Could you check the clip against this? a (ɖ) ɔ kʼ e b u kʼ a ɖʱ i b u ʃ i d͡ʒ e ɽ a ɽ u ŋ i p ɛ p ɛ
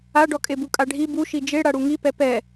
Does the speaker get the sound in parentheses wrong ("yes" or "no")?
no